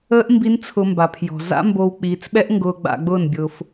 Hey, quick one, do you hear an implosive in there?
yes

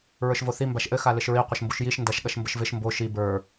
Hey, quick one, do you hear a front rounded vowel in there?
no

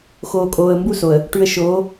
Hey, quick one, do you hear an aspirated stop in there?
no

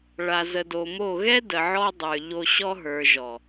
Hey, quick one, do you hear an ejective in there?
no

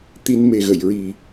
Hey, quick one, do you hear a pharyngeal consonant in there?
no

